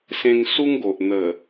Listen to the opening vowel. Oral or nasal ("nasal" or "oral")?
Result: nasal